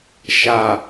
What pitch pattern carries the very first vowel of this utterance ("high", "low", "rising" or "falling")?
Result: low